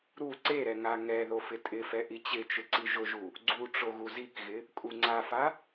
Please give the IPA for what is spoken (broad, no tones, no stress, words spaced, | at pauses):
ɾu ǀeɾɛ ŋaŋɛðo fɪtʼɪfɛ ʔit͡ɕɪt͡ʃɪ ǀiʒʊʒu | ɡ͡ǀu ʈ͡ʂoɣuzikɣɪ | kʼuŋ͡ǀafa